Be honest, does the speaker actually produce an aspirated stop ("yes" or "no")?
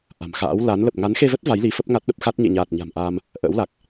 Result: no